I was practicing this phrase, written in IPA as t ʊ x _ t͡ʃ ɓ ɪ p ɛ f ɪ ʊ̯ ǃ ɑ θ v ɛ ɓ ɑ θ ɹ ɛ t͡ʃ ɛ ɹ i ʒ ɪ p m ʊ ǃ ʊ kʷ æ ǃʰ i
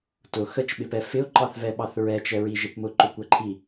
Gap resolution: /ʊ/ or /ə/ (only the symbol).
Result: ə